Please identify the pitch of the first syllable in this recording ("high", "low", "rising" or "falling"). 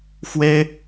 high